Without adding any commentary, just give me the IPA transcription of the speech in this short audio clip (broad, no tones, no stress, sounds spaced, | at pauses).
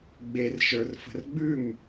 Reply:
ɡ͡b e r ʃ ə˞ r f ə̤ r ɡ͡b ʉ m